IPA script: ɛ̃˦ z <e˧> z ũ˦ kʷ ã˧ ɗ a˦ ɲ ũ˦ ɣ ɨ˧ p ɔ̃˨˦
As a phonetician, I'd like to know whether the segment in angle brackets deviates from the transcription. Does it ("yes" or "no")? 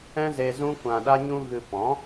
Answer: no